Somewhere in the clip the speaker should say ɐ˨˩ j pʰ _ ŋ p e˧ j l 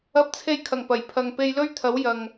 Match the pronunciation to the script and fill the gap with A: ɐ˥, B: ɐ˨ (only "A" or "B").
B